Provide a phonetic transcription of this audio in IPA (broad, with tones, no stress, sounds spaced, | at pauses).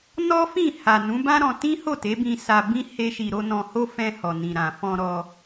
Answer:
n ɔ˦ f ĩ˦˨ h a˨ n ũ˨˦ b ã˦ ɾ ɔ̃˧ t ĩ˦ h o˦˨ t e˨˦ b ĩ˧ s a˧ b ĩ˦ h e˦ ʃ i˧ ɾ o˦ n ɔ̃˧ h o˦ f ɛ̃˧ h ɔ˨ n ĩ˨ ɾ ã˨ f ɔ̃˧ ɾ ɔ˧